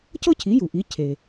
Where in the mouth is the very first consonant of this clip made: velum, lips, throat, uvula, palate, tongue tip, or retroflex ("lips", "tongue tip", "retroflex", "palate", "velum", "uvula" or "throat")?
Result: palate